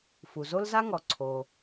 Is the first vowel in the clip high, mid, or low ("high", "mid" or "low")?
high